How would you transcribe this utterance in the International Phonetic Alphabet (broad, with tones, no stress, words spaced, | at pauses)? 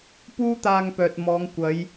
puː˥t̪aː˧ŋpœː˨t̚ mɔː˨˧ŋ kʷɐ˨˧j